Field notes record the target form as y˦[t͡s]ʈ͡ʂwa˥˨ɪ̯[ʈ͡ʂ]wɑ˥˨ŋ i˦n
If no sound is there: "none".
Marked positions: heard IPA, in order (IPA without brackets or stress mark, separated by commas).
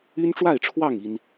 n, ʈ͡ʂʰ